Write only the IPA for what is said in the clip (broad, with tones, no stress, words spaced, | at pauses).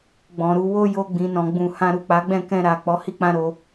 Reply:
ɡ͡bɔ̃˨ɾu˨˦wo˦ jo˧ɡ͡bĩ˨nɔ̃˨ ɡ͡bũ˨ hã˧ɾu˨k͡pa˨˦ɡ͡bɛ̃˦˨ kɛ̃˧ ɾa˨ k͡pɔ˨˦hi˦˨k͡pã˧ ɾo˧